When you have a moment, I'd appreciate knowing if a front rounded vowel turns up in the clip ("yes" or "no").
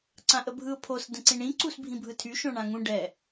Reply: yes